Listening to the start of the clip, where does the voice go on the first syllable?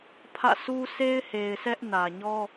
falling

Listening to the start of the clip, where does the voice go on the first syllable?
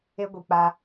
high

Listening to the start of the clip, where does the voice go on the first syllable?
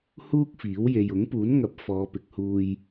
high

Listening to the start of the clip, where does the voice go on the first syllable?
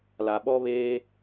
low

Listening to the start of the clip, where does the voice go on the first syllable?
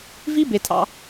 high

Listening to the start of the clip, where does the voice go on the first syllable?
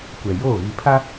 low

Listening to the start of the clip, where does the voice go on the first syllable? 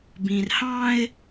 low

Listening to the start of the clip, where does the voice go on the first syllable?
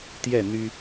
falling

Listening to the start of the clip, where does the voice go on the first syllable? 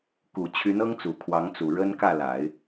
low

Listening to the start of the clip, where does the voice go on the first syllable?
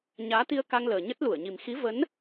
rising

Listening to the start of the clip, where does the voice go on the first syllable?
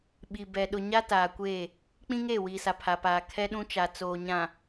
low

